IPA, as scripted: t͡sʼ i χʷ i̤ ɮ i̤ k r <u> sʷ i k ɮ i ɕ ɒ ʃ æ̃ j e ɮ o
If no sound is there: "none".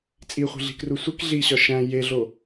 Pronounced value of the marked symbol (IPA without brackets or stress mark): u